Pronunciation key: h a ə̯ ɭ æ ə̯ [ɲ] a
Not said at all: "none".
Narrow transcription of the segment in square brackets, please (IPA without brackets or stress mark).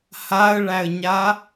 ɲ